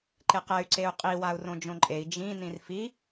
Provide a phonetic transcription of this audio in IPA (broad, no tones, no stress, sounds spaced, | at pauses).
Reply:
ǃ e q ɛ y̯ ǀ e u̯ qʼ i w a u̯ r õ d͡ʒ õ ǃʼ e i̯ d͡ʒ ĩ n ĩ r f i